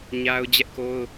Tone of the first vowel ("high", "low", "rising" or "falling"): high